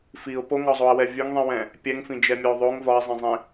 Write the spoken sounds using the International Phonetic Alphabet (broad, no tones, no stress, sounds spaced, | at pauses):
f i ʊ̯ p o ŋ ɒ zˤ o ə̯ w ɛ vʲ ɵ ŋ ðˤ ĩ w ɛ̃ | pʲ ɛ ŋ f ĩ d͡ʒ ɛ mʲ ɵ ʊ̯ ðˤ o ŋ v ɒ ɪ̯ zˤ ɛ̃ zˤ ĩ